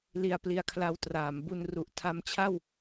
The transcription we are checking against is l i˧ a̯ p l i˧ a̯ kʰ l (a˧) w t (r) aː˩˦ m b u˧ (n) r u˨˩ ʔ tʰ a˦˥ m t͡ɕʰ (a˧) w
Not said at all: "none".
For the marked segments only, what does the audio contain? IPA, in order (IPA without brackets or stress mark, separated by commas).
a˧, r, n, a˥˩